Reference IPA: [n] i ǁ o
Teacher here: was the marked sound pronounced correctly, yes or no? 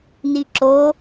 yes